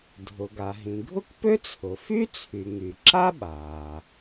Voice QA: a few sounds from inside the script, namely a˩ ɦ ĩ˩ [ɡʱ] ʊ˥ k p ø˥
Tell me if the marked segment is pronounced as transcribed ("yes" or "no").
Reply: yes